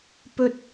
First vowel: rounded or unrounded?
rounded